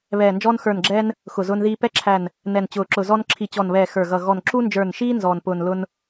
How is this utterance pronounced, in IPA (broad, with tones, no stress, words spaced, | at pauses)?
βɛː˨˩nd͡ʒɔː˧nxə˞˨˩nɡ͡ǁɛː˧n | xʊ˨˩zʊː˧nðiː˧ pɛ˧ǁʰæ˨˩n | nɛ˨˩nt͡ɕʊː˨˩ǁʊ˨˩zɔ˧n ǁʰi˨˩t͡ɕɔ˨˩nβɛː˨˩ xə˞˨˩ɣʌ˨˩ ɣɔ˨˩n ǁu˧nd͡ʒə˞˨˩nʃiː˧ nzɔː˨˩npʊː˨˩n lʊ˧n